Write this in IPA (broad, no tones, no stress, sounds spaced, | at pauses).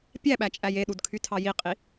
pʲ æ ɓ æ t͡ʃʼ æ j e ɗ u d kʰ y tʰ ɑ j i qʼ i